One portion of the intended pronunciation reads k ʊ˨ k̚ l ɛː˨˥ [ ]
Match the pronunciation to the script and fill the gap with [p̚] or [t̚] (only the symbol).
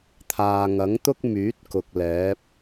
p̚